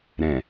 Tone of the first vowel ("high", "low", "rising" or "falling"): low